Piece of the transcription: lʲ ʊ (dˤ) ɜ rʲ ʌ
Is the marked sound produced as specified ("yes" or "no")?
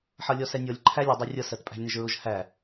yes